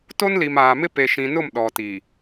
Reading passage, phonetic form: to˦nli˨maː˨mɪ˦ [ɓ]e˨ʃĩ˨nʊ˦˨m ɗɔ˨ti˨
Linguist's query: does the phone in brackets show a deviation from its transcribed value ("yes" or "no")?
yes